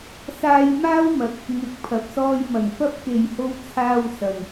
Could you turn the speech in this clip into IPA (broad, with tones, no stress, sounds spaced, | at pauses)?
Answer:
s aː˧ j m aː˥ w m ɐ˨ t̚ | ŋ ɪ˨˥ k̚ pʰ ɐ˨ p̚ s ɔː˧ j m ɐ˨˩ ŋ f ɐ˧ p̚ k e˨ j h o˧ w t͡sʰ aː˧ w s ɐ˨ n